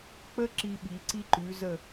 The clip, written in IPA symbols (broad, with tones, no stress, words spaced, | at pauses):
k͡pə˥ ǁi˧ɓi˩˧ ǀi˧ǃʉ˩˧ zə˧˩